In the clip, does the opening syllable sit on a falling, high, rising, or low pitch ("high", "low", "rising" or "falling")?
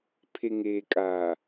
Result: low